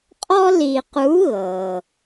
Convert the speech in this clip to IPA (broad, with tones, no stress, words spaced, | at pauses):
qʼɔ˥ li˧ qu˧˥ ɣɤ˩